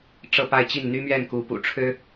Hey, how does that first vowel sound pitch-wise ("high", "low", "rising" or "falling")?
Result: falling